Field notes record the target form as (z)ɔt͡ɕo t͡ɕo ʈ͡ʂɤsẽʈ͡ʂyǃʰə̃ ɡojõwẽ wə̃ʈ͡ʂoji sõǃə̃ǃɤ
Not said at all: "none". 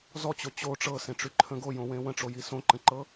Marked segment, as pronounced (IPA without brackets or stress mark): z